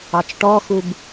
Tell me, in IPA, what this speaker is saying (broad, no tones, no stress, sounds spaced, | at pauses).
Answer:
ɑ t͡ʃ ʈ ɔ x u b